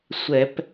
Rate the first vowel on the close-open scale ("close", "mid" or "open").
mid